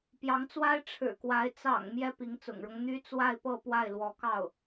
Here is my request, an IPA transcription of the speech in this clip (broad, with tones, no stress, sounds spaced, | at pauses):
p j ɑ˧˥ ŋ t͡s w a˥ ɪ̯ ʈ͡ʂʰ ɻ̩˨˩ k w a˧˥ ɪ̯ t͡s ɑ̰˨˩ ŋ m j ɛ˥ p i˧˥ ŋ t͡s ʊ̰˨˩ ŋ ɻ ɤ˦ ŋ n̪ y˥ t͡s w a˥˧ ɪ̯ p ɤ˥˧ p w a˥˩ ɪ̯ l w ɔ˧˥ k ɑ˥˩ ʊ̯